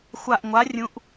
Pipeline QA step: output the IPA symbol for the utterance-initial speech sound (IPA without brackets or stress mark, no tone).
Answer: xʷ